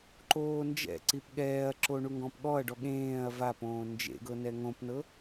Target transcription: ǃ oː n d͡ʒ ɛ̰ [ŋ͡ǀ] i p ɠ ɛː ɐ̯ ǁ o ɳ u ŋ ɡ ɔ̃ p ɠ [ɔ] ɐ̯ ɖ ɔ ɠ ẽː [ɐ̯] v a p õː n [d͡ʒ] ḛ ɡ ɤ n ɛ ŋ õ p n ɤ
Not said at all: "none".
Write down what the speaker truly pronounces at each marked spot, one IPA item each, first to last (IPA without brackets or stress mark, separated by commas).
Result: ǀ, ɔ, ɐ̯, d͡ʒ